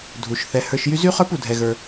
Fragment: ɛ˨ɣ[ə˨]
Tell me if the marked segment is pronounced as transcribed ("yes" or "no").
no